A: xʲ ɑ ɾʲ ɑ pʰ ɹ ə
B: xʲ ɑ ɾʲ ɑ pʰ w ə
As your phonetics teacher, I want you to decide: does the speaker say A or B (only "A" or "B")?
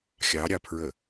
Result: A